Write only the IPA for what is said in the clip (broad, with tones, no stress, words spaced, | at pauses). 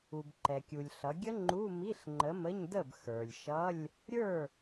u˩bǃɛ˩kʲu˩lʲ ɬʌ˩˧ɡʲə˦˥ ŋ͡ǃu˧˥˧ mi˧˥˧ɬŋ͡ǃə˨˥mə˧˥˧ɲdə˥˩b xə˞˩lʲʃʌ˧˥˧lʲ | ɾʲə˞˥˩